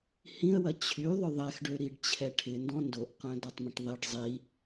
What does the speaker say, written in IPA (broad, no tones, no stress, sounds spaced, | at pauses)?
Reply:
h ĩ ə̯ w ɐ t͡ɕʰ y ðˤ ʏ ðˤ ɛ x ɖ ø ɾ i ɖ t͡ɕʰ ɛ ʈʰ ɪ n d ɔ̃ n d o ʔ q œ̃ d ɔ tˤ m ə̃ ʈ ðˤ i ɖ zˤ i